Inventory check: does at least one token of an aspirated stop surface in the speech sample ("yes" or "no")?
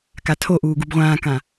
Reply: yes